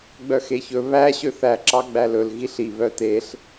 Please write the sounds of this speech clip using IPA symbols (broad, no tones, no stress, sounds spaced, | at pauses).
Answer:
ɡ͡b œ x e ç ɵ β æ ɕ ø θ æ ǁ ɑ ɡ͡b æ l ɵ l ɣ i ɬ i β œ t e ɬ